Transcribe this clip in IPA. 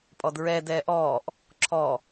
pʼɔdɹɛ dɛːʔɔːʔ | ǁʰɔ

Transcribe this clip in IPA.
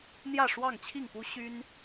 n̪jä˥˨ʂwɑ˥˨ŋt͡ɕʰi˥˨ŋpu˦ ɕy˦n

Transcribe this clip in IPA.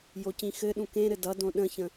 jocĩxɘɗũ kẽɾɘ dʌdõ ɗə̃çə̃

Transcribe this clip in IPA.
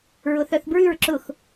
ɹʊθœθbɹʉɹ ǁʊx

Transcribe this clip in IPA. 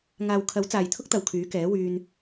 ŋaː˨wkʰɐ˨˥w t͡saː˨jt̪ʰʊ˥k̚t̪ɐ˨w kʰyː˨˥kɛː˨˥ wyː˧n

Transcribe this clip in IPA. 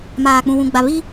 maː˨k͡pũ˨wũ˨ ɡ͡ba˨ βi˦

